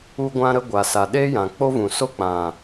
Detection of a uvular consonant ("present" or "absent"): absent